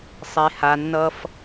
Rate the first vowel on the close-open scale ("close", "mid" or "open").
mid